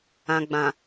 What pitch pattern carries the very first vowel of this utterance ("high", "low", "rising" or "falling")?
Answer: low